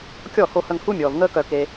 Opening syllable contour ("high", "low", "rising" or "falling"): falling